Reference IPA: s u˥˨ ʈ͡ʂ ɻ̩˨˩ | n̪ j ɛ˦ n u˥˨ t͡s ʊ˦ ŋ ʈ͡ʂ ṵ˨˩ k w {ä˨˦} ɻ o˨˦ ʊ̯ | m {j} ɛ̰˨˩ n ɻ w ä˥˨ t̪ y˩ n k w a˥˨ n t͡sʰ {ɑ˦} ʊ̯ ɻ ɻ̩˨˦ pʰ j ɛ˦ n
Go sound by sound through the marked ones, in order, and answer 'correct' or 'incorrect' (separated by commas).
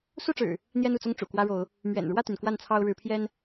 incorrect, incorrect, correct